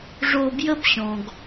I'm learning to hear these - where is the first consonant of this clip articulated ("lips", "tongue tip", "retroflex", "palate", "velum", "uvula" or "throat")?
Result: retroflex